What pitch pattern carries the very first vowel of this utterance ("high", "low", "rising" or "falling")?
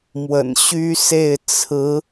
low